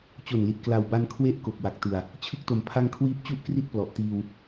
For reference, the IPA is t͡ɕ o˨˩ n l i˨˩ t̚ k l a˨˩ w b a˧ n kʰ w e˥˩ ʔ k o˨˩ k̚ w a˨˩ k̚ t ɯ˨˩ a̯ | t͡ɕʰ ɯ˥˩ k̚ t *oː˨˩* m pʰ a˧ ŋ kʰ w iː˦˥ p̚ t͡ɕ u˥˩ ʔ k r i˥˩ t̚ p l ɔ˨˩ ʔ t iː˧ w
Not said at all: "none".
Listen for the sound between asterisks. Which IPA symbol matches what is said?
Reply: o˨˩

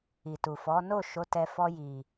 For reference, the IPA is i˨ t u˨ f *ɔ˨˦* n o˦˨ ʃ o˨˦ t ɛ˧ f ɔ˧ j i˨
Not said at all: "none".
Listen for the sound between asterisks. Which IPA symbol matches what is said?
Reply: ɔ˨˦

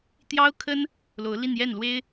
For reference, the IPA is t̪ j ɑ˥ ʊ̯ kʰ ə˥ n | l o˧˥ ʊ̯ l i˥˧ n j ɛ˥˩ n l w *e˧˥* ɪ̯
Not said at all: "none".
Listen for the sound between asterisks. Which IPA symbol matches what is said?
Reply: e˥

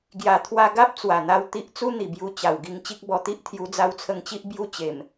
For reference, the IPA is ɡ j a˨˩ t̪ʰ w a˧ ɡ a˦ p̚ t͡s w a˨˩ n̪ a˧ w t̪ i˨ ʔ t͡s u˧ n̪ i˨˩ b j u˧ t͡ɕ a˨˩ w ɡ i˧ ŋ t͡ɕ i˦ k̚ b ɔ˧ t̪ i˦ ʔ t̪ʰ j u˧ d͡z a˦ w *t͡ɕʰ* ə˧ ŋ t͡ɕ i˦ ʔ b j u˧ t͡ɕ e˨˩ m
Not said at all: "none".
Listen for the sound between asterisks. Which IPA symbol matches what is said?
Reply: t͡sʰ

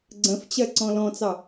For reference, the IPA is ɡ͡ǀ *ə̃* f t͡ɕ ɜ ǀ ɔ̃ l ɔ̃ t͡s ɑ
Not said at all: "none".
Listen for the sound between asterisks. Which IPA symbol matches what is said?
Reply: ə̃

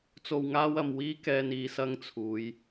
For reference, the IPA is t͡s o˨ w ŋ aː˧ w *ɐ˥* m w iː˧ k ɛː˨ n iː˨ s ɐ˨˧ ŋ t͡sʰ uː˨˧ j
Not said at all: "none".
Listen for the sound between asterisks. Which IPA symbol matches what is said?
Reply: ɐ˨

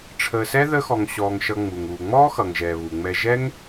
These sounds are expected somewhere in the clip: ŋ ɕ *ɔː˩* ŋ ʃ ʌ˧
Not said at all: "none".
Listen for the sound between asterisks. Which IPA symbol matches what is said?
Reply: ɔː˧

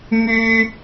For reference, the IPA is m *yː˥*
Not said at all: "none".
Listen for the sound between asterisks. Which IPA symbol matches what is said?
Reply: yː˥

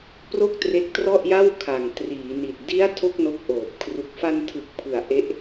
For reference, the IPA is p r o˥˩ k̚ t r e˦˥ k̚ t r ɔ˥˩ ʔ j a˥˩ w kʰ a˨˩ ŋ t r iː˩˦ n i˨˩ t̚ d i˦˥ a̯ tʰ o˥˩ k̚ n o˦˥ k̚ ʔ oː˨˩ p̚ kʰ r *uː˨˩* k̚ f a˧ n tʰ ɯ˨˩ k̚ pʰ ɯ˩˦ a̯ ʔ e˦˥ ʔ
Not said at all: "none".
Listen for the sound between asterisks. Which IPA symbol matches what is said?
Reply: u˨˩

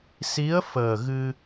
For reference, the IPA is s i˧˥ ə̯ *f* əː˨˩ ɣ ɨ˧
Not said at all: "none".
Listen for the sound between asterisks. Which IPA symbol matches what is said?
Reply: f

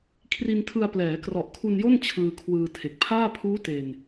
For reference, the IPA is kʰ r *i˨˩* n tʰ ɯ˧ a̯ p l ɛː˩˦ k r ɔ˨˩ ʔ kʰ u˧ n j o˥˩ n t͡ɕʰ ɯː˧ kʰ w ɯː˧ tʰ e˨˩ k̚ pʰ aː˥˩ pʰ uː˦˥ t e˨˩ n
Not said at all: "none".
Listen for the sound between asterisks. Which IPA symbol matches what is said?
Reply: i˧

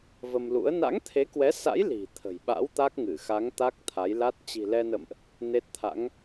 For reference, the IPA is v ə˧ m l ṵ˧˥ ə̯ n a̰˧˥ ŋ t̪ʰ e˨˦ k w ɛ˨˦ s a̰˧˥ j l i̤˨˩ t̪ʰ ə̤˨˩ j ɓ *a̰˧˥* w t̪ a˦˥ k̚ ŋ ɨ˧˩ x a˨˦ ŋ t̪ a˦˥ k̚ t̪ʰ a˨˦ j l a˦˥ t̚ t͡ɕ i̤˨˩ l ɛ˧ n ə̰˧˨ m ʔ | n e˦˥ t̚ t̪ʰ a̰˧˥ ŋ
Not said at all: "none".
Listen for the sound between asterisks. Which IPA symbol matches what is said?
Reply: a̰˧˥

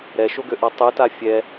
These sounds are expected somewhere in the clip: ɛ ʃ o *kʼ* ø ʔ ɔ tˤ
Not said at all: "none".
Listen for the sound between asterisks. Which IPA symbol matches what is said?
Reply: ɡ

